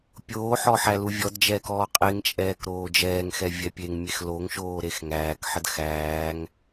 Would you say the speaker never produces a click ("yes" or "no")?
yes